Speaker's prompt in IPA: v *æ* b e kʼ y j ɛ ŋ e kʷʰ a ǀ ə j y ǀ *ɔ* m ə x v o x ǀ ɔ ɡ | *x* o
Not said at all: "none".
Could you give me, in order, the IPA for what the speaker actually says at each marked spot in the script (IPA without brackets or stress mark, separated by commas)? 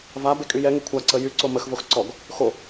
a, o, x